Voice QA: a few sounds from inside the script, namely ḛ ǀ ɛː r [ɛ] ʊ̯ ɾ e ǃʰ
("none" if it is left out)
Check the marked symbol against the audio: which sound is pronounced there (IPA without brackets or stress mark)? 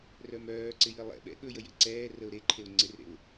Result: ə